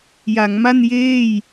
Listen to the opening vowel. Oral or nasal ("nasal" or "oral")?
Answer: oral